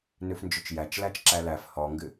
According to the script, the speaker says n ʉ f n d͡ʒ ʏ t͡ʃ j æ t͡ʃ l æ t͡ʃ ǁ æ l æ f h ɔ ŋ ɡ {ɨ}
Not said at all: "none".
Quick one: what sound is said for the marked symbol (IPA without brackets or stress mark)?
ɨ